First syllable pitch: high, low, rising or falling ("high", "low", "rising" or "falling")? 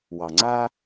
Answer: low